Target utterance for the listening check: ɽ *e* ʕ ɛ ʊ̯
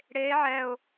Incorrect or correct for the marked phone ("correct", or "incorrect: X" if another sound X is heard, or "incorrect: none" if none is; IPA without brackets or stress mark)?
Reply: correct